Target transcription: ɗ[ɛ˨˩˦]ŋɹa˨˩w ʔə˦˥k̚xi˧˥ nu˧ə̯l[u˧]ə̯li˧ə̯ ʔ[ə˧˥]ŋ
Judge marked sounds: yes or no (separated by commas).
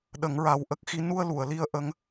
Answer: no, no, yes